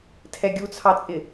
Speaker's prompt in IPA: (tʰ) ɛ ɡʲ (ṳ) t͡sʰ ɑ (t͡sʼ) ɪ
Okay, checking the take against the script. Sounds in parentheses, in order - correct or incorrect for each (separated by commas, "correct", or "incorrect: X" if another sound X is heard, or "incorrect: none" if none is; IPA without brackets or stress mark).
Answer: correct, incorrect: u, correct